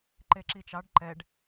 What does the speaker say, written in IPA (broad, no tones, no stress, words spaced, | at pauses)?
ǃeǁit͡ʃɑɖ ǃɛɖ